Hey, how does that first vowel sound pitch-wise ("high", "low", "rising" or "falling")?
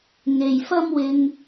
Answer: low